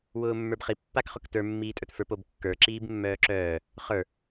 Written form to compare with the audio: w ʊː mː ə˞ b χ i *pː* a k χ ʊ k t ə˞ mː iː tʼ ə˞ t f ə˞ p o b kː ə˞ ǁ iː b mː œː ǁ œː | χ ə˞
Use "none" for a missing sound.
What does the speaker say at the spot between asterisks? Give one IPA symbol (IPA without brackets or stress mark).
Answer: pː